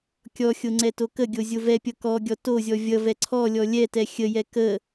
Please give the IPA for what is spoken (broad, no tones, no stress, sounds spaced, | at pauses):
kʲ ɔ xʲ o ŋ͡ǀ ɛ t o k ə ɡʲ o zʲ o v ɛ pʲ ʌ k ɔ ɡʲ ɔ t o zʲ ɔ vʲ ʌ v ɛ ǀʰ ɔ lʲ ɔ lʲ ɛ t ɛ xʲ ə j ɛ k ə